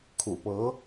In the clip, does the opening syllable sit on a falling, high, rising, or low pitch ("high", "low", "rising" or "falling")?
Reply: low